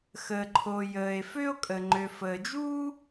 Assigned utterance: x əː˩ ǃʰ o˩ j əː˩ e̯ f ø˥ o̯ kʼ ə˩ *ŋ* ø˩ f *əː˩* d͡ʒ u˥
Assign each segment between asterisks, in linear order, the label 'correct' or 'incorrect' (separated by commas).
incorrect, correct